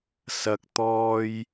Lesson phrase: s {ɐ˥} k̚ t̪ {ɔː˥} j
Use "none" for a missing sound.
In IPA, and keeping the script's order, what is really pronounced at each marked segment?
ɐ˥, ɔː˥

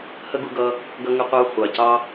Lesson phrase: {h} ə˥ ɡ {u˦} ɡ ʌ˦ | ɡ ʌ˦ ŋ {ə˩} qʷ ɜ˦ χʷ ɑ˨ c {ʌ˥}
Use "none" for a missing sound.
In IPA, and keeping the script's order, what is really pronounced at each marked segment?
h, u˦, ə˦, ɑ˥

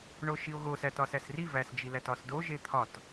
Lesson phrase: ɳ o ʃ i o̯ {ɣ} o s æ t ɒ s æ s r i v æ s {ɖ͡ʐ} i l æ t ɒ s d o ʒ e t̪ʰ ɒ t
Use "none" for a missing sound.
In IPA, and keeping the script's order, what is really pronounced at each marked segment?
ɣ, d͡ʒ

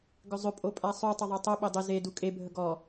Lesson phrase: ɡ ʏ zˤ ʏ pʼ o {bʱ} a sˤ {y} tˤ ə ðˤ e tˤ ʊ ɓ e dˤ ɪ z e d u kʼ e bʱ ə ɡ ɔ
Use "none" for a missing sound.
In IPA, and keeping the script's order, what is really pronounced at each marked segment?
pʼ, y

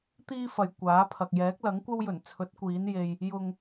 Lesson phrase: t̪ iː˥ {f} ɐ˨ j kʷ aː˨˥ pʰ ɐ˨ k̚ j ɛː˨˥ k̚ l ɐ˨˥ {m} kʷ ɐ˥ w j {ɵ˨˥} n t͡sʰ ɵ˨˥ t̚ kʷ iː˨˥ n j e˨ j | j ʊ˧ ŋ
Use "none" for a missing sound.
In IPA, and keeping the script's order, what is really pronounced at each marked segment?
f, ŋ, ɵ˨˩

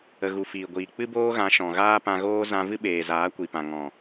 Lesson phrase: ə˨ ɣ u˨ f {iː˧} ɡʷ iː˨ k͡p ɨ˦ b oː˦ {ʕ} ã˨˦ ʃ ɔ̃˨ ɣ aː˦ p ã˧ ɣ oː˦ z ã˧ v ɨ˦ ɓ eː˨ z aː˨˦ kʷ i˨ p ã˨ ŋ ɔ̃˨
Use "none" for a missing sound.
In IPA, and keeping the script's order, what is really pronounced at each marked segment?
iː˨, ɣ

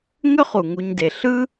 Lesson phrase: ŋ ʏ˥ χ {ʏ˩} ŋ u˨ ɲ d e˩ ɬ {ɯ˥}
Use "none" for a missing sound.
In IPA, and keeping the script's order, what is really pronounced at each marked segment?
u˩, ɯ˥

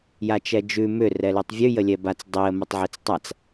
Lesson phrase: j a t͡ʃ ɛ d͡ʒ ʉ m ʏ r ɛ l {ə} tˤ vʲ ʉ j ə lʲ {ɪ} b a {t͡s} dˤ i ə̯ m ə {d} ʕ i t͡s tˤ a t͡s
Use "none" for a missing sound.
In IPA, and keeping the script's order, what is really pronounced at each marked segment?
ʉ, ɛ, t͡s, tˤ

